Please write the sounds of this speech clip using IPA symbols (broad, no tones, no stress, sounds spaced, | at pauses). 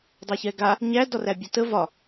dˤ a ç ɛ ɡ a | ɲ æ d ɒ r æ bʲ ɒ t ə v ɒ